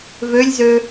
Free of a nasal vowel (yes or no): yes